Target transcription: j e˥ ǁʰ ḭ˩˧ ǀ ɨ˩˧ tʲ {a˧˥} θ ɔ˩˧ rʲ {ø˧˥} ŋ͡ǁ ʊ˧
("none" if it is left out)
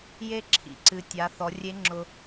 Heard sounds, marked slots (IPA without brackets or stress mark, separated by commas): a˩˧, e˧˥